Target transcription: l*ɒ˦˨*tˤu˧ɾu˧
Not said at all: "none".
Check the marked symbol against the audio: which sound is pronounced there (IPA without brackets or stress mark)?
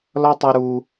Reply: ɒ˦